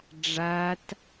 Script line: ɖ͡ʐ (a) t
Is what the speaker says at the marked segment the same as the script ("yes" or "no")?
yes